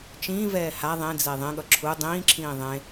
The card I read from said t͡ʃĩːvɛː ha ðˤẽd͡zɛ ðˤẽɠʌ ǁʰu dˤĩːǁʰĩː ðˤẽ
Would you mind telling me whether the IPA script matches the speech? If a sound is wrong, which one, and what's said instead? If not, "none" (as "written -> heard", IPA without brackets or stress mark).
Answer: none